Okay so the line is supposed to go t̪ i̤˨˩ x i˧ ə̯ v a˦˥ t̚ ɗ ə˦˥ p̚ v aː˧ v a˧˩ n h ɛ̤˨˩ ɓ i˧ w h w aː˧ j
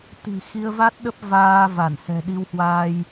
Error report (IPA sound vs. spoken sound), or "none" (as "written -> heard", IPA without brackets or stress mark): ɓ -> ɗ